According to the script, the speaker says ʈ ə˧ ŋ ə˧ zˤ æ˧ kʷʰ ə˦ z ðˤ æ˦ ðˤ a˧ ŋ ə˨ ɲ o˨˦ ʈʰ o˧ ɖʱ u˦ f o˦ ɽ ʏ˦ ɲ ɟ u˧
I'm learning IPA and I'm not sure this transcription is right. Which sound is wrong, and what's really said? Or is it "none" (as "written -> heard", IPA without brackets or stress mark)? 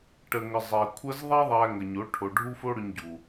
a˧ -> æ˧